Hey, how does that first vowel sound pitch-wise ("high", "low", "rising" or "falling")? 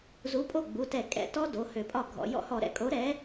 rising